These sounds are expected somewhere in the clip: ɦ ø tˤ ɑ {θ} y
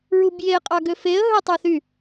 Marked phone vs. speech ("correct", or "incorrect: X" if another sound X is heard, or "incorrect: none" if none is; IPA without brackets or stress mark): correct